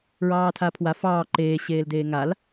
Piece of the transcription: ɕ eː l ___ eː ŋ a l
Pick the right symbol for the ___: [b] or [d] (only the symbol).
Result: d